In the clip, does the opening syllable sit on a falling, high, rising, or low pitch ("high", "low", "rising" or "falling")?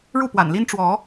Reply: falling